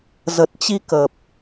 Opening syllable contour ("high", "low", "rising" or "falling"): low